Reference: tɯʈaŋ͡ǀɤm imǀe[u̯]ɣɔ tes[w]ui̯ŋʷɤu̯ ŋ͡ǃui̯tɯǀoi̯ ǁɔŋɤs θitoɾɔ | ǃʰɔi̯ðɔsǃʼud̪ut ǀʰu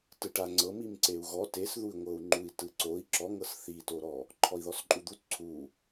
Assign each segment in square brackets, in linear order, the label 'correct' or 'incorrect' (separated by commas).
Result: correct, incorrect